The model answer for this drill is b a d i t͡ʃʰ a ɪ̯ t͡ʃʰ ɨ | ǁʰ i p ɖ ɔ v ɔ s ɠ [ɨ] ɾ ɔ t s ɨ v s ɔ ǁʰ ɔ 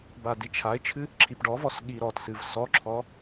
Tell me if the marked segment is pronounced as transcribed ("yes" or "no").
no